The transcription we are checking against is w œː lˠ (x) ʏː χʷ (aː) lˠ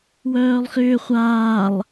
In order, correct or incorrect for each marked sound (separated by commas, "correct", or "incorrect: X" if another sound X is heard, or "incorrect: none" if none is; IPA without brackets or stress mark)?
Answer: correct, correct